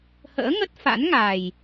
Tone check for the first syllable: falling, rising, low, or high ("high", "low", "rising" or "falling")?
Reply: rising